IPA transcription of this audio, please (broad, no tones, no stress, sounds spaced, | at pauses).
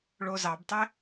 ɭ o z ɑ b tˤ e